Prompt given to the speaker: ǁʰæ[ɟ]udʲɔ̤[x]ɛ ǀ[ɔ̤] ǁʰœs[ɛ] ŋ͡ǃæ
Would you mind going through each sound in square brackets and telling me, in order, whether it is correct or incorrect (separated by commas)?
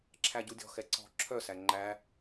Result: correct, correct, correct, incorrect